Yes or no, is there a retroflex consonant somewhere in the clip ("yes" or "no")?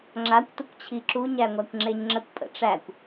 yes